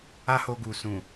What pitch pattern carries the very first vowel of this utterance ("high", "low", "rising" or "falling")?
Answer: high